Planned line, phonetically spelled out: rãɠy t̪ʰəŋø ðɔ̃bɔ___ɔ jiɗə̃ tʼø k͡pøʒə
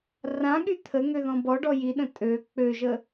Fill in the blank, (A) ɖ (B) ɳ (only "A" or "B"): A